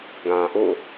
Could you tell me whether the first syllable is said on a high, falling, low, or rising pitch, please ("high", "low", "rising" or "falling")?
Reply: low